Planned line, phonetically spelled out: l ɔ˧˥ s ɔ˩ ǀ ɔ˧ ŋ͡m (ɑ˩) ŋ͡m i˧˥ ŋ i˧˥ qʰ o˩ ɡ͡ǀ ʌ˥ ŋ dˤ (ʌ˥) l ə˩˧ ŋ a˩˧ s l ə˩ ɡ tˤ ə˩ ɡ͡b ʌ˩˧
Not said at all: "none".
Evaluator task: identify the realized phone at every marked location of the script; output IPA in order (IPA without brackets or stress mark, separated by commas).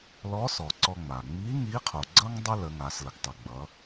a˩, ə˥